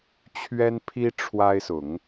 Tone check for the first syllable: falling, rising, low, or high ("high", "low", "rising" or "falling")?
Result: high